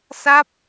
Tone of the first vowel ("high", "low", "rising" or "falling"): falling